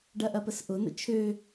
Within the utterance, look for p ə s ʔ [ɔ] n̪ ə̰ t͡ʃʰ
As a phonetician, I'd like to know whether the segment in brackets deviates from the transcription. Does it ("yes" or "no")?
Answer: yes